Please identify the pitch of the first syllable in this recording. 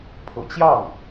low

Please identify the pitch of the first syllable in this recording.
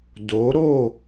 rising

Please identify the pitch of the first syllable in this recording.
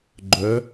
rising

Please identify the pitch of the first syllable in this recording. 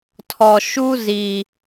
low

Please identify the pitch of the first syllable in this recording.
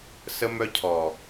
high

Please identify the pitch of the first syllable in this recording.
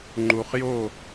low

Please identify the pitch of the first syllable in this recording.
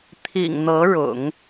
low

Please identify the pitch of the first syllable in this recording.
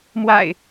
low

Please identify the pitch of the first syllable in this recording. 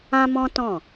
high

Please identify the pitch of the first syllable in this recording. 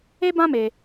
high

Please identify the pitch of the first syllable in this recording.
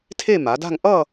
falling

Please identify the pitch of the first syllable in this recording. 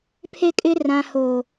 high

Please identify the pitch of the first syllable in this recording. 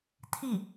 falling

